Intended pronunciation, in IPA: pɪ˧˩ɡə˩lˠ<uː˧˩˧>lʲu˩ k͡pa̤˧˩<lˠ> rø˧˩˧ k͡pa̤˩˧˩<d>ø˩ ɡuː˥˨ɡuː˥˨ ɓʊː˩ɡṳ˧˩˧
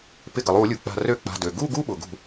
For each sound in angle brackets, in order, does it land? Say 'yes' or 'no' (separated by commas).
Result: yes, no, yes